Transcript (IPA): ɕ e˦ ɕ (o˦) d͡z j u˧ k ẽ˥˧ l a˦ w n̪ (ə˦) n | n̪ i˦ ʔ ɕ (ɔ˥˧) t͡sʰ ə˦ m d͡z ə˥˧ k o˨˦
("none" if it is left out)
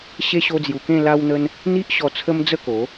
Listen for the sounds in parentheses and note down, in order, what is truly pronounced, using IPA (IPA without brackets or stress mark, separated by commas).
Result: o˦, ə˦, ɔ˧